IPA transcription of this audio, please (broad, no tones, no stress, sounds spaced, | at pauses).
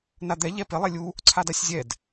n a d̪ ɛ ʎ ɛ p ɪ lˠ e lʲ u | ǀʰ a d a sʲ zʲ ɛ d